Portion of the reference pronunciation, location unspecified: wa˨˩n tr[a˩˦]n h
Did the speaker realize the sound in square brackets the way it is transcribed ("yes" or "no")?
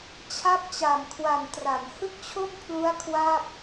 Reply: yes